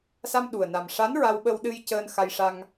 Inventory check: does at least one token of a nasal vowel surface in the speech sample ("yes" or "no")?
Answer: no